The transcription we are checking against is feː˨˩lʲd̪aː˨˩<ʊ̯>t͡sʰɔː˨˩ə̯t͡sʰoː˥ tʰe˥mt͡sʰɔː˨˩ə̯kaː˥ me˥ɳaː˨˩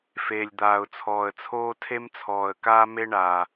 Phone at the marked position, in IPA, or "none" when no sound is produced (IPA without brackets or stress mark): ʊ̯